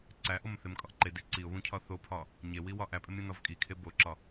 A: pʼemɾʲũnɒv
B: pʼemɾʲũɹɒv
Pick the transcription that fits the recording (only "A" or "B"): A